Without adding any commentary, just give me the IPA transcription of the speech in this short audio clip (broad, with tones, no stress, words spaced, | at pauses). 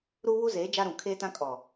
ɾuː˦βu˦zeː˨˦ d͡ʒa˦ɾũ˨ kʰeː˦tã˦ kʼɔ˨